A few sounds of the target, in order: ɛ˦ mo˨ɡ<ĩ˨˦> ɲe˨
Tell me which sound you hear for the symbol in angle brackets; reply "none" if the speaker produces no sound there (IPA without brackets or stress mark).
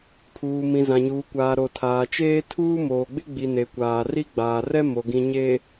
ĩ˨